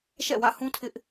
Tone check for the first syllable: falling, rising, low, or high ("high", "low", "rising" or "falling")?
falling